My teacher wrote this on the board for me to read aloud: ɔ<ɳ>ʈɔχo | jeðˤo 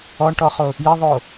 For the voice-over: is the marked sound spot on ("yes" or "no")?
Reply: yes